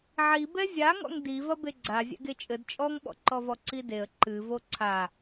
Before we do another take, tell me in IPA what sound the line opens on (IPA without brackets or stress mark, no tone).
ʕ